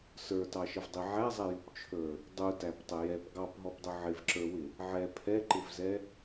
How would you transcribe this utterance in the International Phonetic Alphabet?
s ə˞ t ɑ ʃ ə v dˤ i ʕ æ zˤ ɛ j u p t͡ʃʰ ə˞ | dˤ u t æ p tˤ ə j ɛ p ɡ ɑ p ɦ ɔ p dˤ ʊ ʕ ɪ v ǁ ə˞ w ɪ | ʕ ɛ pʰ ɛ ǃ ɪ v z ɛ

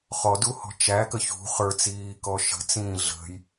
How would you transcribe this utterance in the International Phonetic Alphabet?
χ ɔ d u h ɔ̤ t͡ʃ æ k ə ç ṳ χ ə˞ t͡s iː k ɔ ʃ ə̤ t͡s ĩː ɮ ə̤ j

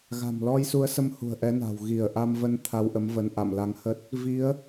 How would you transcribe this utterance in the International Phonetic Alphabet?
ɣ a̤˨˩ m l ɔ˧ j s u˨˦ ə̯ s ə˧ m h ṳ˨˩ ə̯ ʔ ɛ˨˦ n a̤˨˩ w ɣ i˧˩ ə̯ ʔ a˧ m v ə˧ n t̪ʰ a˧ w ʔ ə˨˦ m v ə˨˦ n ʔ a̰˧˨ m l a˨˦ ŋ h ə˦˥ t̚ | v i˨˦ ə̯

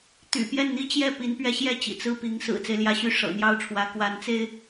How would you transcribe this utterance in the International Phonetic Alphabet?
t̪ y̰˨˩ p j ɛ˥˩ n n̪ i˥ t͡ɕ j ɛ˥˩ p i˧˥ n p ɥ ɛ˧˥ ɕ j ɛ˥˩ t͡ɕ ḭ˨˩ t͡s ɹ̩˥˩ p i˧˥ ŋ s ɹ̩˨˩ t͡s e˦ ɪ̯ l j ä˧˥ ɕ y˥˩ ʂ ɤ̰˨˩ n̪ j ɑ˥˩ ʊ̯ ʈ͡ʂʰ w ä˧˥ k w a˧˥ n t͡s e˥ ɪ̯

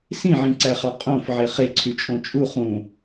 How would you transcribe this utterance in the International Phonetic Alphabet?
s ĩ ʕ ĩ ǀ æ χ ɑ qʼ õ f ʕ e χ e ǀʰ y t͡ʃʼ õ t͡ʃʼ u χ ũ

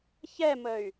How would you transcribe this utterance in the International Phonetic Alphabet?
ç ɛ m ə y̯

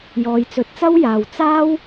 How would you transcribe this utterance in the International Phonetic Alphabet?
j ɔː˨ j t͡s ɵ˨˥ t̚ t͡s ɐ˥ w j aː˨ w t͡s aː˥ w

